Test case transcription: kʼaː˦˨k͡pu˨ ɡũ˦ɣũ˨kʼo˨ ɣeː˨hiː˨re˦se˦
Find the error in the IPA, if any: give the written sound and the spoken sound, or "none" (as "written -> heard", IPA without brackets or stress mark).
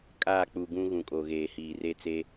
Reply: s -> t͡s